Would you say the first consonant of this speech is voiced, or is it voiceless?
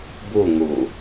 voiced